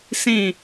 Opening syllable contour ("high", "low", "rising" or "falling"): falling